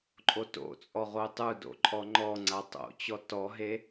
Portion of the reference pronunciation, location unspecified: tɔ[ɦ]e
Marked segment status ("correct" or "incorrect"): correct